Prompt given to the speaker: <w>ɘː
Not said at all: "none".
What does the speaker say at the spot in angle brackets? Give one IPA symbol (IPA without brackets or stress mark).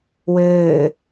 w